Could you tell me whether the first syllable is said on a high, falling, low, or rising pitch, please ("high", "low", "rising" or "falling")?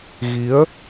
rising